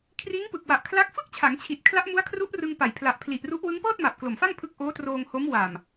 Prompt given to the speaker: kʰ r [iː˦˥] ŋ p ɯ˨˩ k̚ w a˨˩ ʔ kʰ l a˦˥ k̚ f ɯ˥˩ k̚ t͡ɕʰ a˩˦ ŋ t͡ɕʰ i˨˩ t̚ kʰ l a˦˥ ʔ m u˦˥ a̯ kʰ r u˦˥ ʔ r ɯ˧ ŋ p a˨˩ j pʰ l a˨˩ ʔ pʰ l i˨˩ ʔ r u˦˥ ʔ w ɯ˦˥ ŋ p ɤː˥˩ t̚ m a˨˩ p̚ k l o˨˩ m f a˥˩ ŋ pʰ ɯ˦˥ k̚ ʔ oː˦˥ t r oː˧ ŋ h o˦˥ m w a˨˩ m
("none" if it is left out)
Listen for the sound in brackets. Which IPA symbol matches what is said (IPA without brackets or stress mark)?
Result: iː˦˥